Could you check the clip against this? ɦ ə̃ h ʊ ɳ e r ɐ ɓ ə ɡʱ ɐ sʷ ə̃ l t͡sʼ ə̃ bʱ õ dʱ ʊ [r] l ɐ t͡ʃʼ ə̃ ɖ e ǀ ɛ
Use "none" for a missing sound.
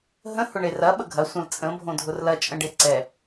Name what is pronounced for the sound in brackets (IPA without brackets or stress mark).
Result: r